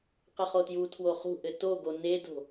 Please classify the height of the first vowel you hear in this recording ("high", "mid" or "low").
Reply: mid